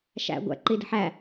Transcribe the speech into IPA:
ʃæ̰ ɡʷæ̰ ǃidə̤ħæ

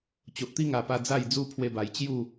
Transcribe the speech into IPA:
t͡ɕo˨ʔt̪i˦ŋa˨˩pa˧ d͡za˥˧jd͡zu˦ pʰwe˧ba˨˩j t͡ɕju˥˧

